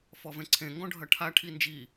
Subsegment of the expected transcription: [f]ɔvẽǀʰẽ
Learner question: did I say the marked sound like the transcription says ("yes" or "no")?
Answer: yes